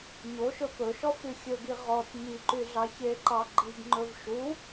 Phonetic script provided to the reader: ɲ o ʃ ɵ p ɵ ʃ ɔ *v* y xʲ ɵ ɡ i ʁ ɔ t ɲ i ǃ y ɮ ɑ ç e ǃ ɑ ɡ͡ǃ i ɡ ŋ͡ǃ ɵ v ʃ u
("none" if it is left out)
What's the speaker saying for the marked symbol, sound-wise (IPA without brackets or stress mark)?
f